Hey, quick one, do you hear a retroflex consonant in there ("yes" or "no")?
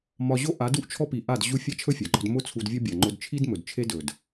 no